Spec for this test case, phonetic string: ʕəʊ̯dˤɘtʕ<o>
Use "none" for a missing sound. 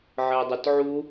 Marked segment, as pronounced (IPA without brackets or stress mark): u